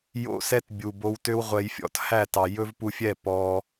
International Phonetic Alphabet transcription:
jo̰˦sɛ˦t bʲu˨bo˧wtø˦w ʁʷɛ˧jfʲɔ̰˧t hæ˦˨tɑ˨ jɵ˦vpu˧fʲɛ˦˨ pɔ˧

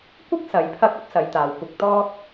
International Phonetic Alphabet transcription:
kʷɪ˥k̚ sɐ˨˧jpʰɐ˥k̚ɐ˥p̚sɐ˨˧j t̪aː˨wkʷɪ˧k̚ t̪ɔː˥k̚

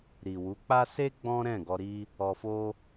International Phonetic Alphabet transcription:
ɾi˨wu˨˦k͡pa˦ se˦ ɡ͡bɔ̃˦ ɾɛ̃˦˨ɡɔ˧ɾi˦ | ɔ˧fo˦

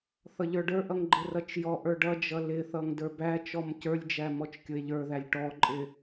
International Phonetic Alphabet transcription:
θʌʎə˞ɖə˞ʔʌŋ ɡ͡ǃɪrʌt͡ʃjɔʔə˞ ɖʌd͡ʒʌ lɪθʌŋ də˞bæt͡ʃɔm cə˞lʲd͡ʒæ mɔt͡ʃkʲʊe̯ʎə˞ðælʲ ʈɔǃʼɪ

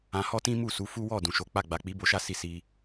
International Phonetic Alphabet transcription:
ã˧hɔ˦tĩ˦mu˦˨ su˨˦fu˦ wɔ˦˨ dũ˨ʃo˨˦k͡pa˦˨ ɡ͡ba˨k͡pi˨˦ bo˧ʃa˦si˧ si˧

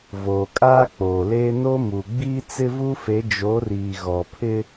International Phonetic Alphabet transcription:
voː˨kʼaː˦k͡poː˨leː˦ no˦mu˨ ɡ͡biː˦t͡sɪ˦vu˦fe˨˦ d͡ʒo˨˦riː˨ɣɔ˨ pʰɪ˦

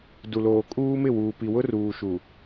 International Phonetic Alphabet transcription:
du˨loː˨ kʼuː˦mɪ˦˨wuː˨pi˨ wʊ˦ruː˨ʃu˨

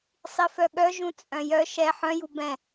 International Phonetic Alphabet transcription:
sˤifœɠœ ʒũt͡sʼœ̃jœ ʃɛ ħœ̃ju bɛ̃

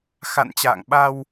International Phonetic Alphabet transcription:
xa̰˧˨nt͡ɕa̰ː˧˨ŋ ɓa˧w

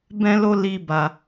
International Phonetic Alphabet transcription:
bɛ̃˦lo˦ li˦ba˧

